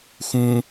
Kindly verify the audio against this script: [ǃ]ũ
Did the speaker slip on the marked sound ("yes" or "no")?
yes